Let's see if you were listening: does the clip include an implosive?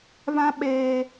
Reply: yes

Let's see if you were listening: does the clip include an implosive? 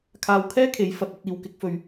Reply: no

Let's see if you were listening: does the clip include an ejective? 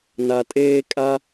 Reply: yes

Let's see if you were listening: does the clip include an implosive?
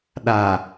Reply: yes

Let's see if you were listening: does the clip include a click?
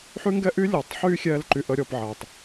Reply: yes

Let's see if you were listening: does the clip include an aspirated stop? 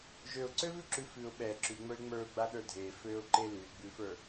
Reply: no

